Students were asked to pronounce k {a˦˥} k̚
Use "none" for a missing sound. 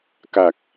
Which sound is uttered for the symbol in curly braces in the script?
a˨˩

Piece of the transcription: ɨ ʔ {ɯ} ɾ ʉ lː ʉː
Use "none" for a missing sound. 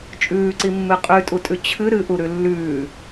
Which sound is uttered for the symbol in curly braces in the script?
u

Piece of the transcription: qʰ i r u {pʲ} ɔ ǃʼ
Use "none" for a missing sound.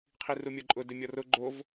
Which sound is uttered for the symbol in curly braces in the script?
mʲ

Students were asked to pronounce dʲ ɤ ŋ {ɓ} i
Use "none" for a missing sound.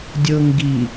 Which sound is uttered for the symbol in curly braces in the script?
ɡ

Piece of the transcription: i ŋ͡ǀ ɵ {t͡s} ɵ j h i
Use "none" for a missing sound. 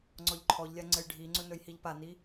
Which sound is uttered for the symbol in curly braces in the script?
n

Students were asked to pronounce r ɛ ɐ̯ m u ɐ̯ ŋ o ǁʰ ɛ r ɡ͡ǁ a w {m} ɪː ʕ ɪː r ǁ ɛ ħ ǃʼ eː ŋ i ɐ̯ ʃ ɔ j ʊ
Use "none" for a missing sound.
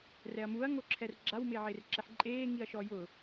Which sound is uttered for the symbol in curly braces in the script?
m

